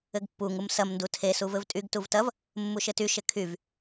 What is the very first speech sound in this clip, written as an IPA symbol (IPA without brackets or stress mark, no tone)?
ɘ